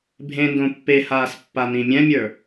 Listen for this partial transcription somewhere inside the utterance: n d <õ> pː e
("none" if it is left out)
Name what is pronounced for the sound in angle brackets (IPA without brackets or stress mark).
õ